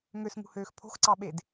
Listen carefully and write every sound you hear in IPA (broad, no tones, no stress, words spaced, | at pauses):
ŋøsŋṳhøːx pʰo̤xǀɑɓed